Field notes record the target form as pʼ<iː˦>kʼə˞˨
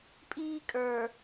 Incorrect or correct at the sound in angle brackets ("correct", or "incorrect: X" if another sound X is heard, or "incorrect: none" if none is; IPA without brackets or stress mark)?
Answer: correct